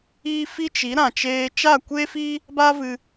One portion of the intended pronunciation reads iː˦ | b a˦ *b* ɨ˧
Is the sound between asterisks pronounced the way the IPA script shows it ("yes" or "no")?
no